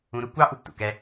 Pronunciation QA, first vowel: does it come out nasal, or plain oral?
nasal